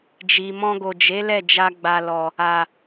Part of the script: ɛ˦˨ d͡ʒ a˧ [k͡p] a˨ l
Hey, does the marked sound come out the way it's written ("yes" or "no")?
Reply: no